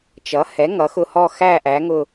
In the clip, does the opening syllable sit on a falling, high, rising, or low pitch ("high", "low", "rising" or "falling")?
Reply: rising